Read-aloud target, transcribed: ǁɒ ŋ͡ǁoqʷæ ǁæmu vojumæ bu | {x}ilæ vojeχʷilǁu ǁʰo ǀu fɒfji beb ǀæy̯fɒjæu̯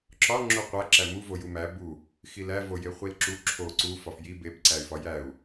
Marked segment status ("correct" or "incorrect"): correct